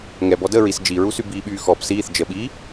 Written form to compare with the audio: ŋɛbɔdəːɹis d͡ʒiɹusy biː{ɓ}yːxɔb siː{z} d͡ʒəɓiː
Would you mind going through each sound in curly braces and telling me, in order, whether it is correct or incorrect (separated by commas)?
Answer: correct, incorrect